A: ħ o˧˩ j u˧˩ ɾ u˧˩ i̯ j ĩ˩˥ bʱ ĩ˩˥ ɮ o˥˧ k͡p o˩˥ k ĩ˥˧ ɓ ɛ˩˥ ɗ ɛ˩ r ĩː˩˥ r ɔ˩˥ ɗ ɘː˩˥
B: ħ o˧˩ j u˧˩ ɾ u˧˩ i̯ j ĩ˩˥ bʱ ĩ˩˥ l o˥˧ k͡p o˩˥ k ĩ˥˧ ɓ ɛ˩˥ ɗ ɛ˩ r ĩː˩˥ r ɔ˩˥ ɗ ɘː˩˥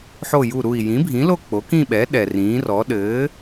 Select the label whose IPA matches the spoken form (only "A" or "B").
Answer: B